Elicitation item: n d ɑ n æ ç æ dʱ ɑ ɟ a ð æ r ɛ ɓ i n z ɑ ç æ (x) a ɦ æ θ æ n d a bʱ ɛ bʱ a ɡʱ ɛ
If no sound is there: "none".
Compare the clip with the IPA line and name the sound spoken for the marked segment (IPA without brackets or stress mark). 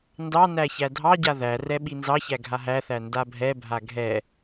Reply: ɡʱ